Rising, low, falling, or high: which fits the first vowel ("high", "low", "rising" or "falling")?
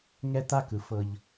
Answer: high